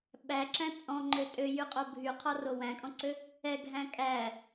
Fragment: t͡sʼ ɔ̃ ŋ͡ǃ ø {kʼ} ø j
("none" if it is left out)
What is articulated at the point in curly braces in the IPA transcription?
tʼ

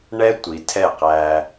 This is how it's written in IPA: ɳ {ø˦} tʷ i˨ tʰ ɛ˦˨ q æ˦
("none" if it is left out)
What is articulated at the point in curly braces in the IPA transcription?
ɛ˦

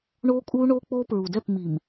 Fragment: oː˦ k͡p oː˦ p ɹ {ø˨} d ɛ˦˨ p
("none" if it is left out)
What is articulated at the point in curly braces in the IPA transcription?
u˨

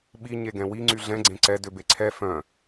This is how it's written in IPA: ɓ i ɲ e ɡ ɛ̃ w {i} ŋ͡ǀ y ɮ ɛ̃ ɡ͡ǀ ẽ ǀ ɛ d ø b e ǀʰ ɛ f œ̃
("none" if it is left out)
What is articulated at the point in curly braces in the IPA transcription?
i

